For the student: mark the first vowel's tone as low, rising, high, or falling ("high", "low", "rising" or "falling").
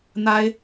high